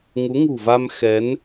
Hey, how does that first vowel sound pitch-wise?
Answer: rising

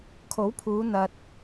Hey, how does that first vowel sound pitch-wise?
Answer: rising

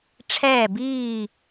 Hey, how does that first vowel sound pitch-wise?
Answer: falling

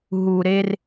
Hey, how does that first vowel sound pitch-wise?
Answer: low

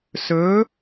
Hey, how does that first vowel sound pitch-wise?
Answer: rising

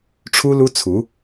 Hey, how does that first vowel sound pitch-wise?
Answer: high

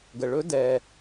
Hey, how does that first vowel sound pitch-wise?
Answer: low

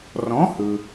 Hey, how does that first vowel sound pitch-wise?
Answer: rising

